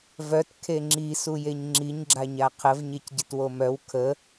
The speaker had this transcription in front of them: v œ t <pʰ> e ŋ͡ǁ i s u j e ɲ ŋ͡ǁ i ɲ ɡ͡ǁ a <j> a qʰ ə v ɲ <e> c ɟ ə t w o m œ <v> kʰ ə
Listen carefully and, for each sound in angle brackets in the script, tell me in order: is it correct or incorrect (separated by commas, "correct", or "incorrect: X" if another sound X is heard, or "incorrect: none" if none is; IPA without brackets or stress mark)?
incorrect: kʰ, incorrect: ɲ, correct, incorrect: w